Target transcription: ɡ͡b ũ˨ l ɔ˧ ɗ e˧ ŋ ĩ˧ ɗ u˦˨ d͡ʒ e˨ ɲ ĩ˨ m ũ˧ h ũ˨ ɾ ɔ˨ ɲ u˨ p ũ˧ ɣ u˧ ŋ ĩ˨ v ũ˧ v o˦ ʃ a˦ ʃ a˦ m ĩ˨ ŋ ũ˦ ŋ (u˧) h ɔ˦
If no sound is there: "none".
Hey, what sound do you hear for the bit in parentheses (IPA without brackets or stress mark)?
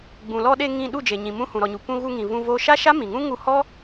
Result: u˧